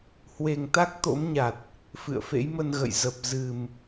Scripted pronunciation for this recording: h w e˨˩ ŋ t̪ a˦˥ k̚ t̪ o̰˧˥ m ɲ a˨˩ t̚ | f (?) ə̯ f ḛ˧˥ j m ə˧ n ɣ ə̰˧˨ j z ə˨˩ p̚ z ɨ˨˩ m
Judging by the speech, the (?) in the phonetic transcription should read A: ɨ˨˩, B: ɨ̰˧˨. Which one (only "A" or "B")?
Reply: B